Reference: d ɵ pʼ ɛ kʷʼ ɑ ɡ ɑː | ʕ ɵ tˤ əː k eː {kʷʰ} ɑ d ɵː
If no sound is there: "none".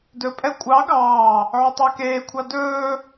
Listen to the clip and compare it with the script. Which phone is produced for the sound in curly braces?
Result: kʷʰ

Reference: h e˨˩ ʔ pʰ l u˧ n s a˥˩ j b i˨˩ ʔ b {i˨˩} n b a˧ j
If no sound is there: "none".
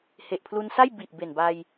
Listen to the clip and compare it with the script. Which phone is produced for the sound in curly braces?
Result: e˨˩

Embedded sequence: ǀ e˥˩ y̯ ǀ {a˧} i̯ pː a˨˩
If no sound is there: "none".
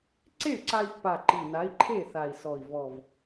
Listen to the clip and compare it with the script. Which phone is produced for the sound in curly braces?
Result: a˧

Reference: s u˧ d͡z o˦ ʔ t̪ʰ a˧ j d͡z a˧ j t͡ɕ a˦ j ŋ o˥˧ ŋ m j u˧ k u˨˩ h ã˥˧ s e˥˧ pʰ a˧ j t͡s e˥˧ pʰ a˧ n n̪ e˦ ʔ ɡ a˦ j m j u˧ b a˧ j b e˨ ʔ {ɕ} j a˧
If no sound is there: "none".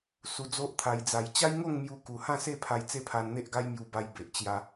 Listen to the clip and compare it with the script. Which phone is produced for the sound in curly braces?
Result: t͡ɕ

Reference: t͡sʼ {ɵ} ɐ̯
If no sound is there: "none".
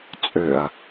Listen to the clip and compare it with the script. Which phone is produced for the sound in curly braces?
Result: ø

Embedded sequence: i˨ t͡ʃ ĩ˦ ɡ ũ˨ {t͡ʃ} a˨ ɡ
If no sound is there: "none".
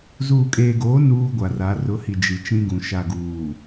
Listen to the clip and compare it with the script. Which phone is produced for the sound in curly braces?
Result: ʃ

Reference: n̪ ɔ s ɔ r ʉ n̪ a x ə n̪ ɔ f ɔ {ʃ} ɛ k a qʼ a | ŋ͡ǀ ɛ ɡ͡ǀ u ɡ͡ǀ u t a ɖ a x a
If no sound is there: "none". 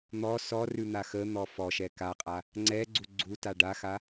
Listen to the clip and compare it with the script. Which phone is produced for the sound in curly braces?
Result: ʃ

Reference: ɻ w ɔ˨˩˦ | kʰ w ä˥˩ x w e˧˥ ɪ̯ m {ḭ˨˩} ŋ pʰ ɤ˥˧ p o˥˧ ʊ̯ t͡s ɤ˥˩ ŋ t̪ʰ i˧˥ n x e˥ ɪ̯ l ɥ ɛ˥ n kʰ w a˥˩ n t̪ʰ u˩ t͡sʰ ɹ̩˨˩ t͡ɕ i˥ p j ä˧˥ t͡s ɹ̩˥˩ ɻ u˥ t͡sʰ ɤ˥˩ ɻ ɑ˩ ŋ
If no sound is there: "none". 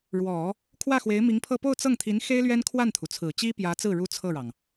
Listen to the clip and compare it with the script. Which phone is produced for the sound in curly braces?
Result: i˧˥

